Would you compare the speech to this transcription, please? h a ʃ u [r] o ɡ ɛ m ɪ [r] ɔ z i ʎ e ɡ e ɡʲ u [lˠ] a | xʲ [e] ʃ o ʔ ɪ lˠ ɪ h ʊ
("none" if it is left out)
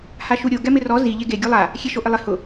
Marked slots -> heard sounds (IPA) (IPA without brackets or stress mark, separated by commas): ɾʲ, r, lˠ, e